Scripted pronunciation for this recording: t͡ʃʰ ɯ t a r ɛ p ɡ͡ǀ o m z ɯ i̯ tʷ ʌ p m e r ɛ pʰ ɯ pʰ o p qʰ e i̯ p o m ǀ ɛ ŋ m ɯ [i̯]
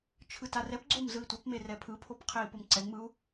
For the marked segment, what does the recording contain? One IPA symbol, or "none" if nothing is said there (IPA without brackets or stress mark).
u̯